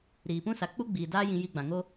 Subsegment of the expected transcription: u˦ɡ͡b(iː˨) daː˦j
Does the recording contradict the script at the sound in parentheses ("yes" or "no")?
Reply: no